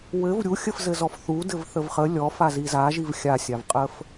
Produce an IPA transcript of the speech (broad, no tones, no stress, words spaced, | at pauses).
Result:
wɘv ɾʲuxʲəfzɘzɔf θu dɘvθəvχə lʲɔ faziza ʒivxʲasʲavqʼəf